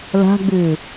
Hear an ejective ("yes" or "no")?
no